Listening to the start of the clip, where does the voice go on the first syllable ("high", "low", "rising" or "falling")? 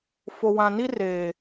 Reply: low